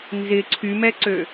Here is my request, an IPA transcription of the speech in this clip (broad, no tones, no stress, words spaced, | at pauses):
nzɪ ǀʰymɛǀø